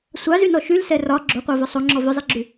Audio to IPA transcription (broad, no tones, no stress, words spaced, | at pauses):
sʷazynɔ ʃylsɛ rɒ ɡ͡ǁoqʷavʏ sˤoŋ͡ǁɔ vʏzˤeɡ͡ǁy